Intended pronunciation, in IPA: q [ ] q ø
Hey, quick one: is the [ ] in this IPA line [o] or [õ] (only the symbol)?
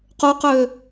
o